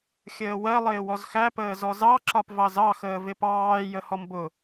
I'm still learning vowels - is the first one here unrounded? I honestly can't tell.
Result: yes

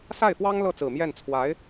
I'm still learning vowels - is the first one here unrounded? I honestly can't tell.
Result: yes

